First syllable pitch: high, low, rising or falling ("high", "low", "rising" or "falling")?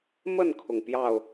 falling